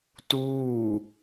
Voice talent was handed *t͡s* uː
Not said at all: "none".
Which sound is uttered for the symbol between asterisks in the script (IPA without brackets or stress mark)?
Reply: t